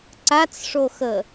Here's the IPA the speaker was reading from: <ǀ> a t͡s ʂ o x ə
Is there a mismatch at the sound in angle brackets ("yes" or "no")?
no